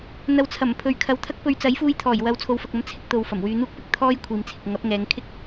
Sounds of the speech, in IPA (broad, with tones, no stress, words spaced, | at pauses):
n̪ɐ˨w t͡sʰɐ˨˩mpʰɵ˨ɥ kʰɐ˨˥wt̪ʰɐ˥k̚pɵ˧ɥ t͡sɐ˨˥jfuː˧jt̪ʰɔː˨˩j wɐ˧w t͡sʰo˨wfɐ˨k̚ɐ˨˥m t͡sʰɪ˧k̚t̪o˨w fɐ˨˩mwyː˨˧n̪uː˥k̚ pɪ˧k̚ t̪ʰɔː˥j kʷʰiː˨mt͡sʰɪ˨k̚ ŋɐ˨˥p̚ŋɛː˨˧ŋ kʰɪ˥k̚